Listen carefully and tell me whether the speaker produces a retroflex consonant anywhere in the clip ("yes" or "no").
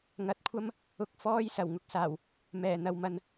no